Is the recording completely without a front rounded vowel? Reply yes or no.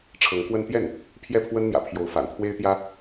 yes